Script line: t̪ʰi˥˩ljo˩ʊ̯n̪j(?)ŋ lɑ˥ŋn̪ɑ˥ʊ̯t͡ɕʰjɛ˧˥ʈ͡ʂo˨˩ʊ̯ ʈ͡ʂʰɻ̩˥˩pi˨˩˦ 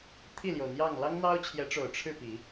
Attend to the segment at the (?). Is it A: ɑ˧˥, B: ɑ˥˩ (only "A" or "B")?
B